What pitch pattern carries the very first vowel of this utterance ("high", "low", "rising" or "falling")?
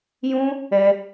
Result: high